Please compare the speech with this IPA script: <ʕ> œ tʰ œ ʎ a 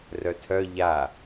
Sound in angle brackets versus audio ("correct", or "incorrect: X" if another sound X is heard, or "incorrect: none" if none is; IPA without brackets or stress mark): incorrect: r